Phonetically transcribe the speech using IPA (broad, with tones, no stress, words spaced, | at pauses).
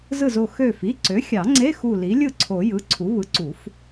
zɯ˧˩zo˧˩ xø˧˩fi˩˧˩ǀø˩˥ xʲɑ˨˩˦ŋ͡ǀe˧˥˧ xu˧˩li˩˥lʲɯ˥˩ǀʰo˨˩˦ jɯ˩˧˩ǀʰu˩˥ βɯ˩˥ǀu˨˩˦f